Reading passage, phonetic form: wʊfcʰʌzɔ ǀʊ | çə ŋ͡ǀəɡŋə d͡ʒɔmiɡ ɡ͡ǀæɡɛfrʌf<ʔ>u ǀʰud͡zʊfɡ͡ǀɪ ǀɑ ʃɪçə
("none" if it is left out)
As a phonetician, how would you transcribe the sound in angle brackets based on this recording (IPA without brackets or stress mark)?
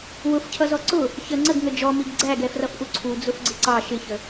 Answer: ʔ